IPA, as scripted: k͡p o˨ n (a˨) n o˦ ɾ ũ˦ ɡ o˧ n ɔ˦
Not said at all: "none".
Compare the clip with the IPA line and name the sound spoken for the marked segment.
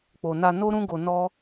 a˧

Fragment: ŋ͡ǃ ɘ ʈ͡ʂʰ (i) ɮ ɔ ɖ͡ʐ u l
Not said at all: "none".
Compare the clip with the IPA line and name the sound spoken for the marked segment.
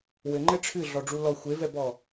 ɨ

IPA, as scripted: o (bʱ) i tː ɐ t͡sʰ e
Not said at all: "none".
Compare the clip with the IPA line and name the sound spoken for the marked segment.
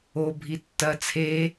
bʱ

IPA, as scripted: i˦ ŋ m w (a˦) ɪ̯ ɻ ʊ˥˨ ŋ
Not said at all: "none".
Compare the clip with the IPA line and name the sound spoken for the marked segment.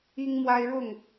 a˦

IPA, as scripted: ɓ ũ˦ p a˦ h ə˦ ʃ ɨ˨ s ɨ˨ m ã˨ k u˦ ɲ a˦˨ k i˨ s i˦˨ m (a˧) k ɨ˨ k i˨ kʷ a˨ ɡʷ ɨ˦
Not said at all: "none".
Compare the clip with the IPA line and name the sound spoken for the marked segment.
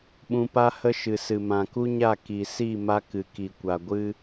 a˧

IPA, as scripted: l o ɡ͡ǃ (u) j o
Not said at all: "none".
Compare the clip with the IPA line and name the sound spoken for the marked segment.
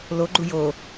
u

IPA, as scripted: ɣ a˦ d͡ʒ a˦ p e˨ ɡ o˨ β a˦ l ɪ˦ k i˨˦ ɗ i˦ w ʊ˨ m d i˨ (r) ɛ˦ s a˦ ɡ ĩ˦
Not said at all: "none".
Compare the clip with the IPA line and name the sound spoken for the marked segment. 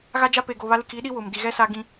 ɣ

